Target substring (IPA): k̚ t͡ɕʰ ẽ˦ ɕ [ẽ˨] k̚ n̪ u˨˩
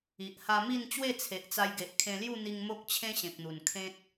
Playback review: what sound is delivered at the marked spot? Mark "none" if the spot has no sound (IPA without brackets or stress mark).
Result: ẽ˨